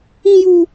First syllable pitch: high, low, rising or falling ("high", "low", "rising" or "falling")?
high